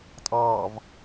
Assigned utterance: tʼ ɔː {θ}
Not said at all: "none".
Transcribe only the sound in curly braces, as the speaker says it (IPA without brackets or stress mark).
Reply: v